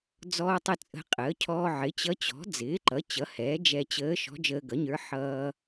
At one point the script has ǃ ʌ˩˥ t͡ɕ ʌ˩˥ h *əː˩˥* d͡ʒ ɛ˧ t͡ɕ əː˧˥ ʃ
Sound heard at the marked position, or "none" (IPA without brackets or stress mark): ɛː˩˥